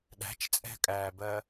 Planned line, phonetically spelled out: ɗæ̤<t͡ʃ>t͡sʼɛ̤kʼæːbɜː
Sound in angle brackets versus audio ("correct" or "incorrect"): correct